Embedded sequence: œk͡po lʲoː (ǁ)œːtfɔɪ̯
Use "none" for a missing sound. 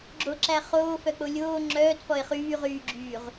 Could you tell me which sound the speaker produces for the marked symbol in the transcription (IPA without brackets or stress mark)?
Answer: ŋ͡ǁ